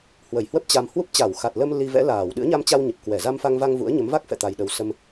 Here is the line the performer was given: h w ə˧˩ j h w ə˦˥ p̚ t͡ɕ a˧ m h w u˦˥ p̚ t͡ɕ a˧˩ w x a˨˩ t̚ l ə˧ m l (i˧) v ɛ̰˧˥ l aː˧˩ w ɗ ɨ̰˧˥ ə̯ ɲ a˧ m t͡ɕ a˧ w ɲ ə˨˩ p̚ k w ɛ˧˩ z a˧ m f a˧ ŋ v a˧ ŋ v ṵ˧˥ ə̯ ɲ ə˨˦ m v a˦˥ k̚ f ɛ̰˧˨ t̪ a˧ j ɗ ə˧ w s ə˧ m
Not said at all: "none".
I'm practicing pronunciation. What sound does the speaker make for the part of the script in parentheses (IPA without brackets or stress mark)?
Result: i˧